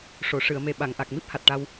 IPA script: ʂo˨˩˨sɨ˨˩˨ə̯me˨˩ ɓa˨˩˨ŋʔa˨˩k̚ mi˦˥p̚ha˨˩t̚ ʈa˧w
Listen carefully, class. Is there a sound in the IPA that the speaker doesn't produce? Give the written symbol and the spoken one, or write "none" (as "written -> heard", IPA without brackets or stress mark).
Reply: s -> ʂ